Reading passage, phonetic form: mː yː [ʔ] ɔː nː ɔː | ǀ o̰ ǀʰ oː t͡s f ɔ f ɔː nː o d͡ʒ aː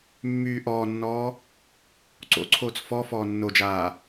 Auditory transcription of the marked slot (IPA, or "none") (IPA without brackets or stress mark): ʔ